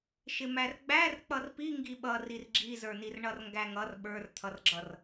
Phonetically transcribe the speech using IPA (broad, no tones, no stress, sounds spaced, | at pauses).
ʃ ɪ m æ r ɡ͡b æ r k͡p ʌ r p i ŋ ɡ i ɓ ʌ r i r ɡ͡ǁ i z ə˞ n i r ɳ ʌ r ŋ ɡ æ ŋ ʌ r ɓ ə˞ r t̪ʰ ʌ r ɡ͡ǁ ʌ r